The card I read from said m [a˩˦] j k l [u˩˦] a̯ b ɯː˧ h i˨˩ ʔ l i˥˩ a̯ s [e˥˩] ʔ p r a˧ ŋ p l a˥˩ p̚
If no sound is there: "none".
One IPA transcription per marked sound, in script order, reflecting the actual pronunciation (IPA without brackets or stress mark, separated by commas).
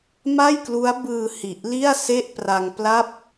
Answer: a˥˩, u˦˥, e˥˩